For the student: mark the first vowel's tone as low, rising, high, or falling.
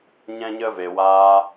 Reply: high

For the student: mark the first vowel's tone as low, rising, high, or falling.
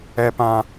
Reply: low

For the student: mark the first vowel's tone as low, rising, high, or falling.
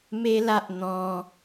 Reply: high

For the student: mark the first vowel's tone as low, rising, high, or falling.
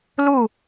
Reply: falling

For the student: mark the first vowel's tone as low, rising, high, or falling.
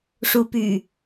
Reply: rising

